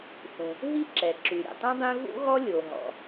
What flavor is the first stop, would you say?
click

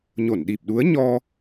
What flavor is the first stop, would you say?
implosive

